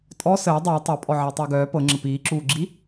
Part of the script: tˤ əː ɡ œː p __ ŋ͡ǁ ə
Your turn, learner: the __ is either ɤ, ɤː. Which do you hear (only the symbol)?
ɤ